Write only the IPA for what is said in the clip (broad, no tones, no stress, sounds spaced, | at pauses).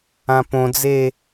ã p õ d͡z e